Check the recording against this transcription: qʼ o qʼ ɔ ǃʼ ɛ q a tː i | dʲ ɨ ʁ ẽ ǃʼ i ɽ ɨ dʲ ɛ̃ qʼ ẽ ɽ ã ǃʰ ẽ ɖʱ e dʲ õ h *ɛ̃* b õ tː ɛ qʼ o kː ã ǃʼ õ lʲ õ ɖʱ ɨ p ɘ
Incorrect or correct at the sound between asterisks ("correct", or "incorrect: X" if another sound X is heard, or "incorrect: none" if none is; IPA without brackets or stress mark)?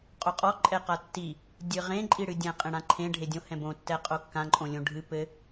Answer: correct